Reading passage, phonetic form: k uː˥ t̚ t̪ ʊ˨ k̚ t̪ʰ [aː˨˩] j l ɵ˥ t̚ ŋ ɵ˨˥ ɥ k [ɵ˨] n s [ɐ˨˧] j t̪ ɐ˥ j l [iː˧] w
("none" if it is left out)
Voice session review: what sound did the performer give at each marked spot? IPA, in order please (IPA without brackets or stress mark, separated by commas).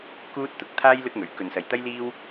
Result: aː˥, ɵ˨, ɐ˨, iː˥